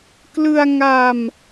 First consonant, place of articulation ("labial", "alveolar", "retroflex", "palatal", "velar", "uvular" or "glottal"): velar